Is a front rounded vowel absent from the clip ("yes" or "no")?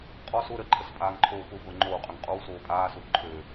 no